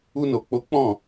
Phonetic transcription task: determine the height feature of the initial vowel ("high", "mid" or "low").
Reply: high